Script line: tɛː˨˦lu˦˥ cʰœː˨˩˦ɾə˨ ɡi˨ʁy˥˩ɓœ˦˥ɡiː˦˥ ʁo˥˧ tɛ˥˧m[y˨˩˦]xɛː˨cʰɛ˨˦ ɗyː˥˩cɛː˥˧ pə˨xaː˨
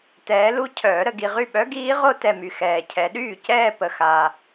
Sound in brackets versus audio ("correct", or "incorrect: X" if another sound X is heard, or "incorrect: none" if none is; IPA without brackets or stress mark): incorrect: y˨